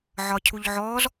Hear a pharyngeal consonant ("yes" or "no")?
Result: yes